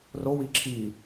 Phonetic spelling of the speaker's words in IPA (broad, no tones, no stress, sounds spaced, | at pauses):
r o w i ǁʰ i